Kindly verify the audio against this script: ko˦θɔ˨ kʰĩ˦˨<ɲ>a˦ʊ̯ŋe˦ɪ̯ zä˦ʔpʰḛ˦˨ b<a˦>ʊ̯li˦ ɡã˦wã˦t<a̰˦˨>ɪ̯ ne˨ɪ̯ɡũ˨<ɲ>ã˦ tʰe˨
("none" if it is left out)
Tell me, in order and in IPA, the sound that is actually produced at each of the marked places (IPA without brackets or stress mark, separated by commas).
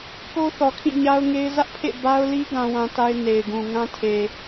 ɲ, a˦, a˦, ŋ